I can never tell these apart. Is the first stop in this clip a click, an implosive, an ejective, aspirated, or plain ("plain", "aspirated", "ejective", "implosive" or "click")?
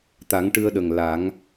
plain